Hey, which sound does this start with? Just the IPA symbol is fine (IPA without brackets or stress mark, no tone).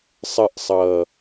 sˤ